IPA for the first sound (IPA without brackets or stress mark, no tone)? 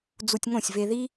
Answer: d͡z